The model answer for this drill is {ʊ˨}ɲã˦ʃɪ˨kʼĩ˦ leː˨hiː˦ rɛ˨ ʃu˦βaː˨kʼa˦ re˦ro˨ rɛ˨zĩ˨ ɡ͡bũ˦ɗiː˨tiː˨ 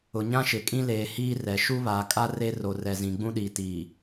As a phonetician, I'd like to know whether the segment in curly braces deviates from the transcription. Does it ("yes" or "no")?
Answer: no